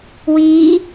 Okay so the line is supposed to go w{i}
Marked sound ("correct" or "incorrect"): correct